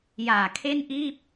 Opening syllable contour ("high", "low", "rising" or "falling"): low